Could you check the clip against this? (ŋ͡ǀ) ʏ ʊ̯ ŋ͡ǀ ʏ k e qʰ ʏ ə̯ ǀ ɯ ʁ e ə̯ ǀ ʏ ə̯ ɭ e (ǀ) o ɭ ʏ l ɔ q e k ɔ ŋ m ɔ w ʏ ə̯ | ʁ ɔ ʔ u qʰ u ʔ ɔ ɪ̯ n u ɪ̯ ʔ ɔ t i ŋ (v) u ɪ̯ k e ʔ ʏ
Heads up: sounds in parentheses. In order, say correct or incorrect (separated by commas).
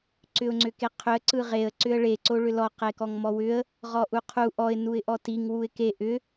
incorrect, correct, incorrect